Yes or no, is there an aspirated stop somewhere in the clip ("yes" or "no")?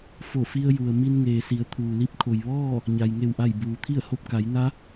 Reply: yes